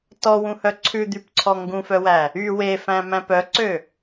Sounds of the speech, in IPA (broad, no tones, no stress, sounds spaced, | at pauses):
t ɔ w ũ h œ ǀʰ ʉ d̪ y p ǀʰ ɔ ŋ ɡ ũ f œ w æ | y w e f æ̃ m æ̃ p œ ǀ ø